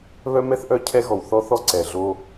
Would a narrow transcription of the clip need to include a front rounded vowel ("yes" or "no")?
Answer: yes